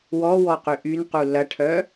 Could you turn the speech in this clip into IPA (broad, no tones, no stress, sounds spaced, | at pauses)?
w ɔ w ɔ q y ʔ y n q u l ɐ ʈʰ œ